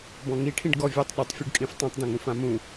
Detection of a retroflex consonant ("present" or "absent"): present